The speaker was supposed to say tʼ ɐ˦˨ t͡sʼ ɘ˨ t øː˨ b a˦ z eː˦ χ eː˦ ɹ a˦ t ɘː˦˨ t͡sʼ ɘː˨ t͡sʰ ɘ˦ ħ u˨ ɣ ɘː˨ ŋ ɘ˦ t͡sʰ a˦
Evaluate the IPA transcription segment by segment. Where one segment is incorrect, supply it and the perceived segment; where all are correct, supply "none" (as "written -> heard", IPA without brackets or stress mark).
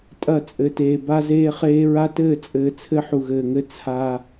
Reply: øː˨ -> eː˨